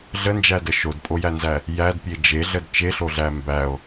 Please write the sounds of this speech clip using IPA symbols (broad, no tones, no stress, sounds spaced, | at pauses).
ɮ ə n d͡ʒ æ d ə ʃ o d pʼ o j æ n z æ | j æ d pʲ e d͡ʒ e ɮ ə d t͡ʃ e ɬ o ɮ æ m b æ o̯